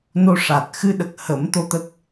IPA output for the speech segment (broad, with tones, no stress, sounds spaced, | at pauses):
n o˧ ʂ a˨˩ t̚ x ɨ˧ ɗ ə˨˩ k̚ h ə˨˩˦ m t̪ o˧ t̪ ə˦˥ k̚